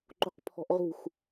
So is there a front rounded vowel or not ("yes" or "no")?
no